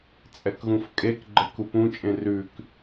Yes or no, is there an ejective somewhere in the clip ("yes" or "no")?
yes